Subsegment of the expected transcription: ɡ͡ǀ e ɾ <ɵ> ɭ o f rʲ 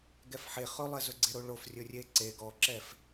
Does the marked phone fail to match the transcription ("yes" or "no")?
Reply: yes